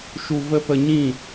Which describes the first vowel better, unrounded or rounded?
rounded